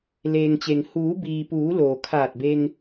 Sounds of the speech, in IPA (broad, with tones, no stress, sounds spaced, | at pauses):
l eː˩ ŋ t͡ɕ e˩ ŋ h uː˩˧ b iː˩ p uː˩˧ l oː˩ kʰ aː˧˩ t̚ b e˧ ŋ